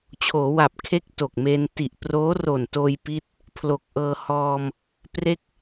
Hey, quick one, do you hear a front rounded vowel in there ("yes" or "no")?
no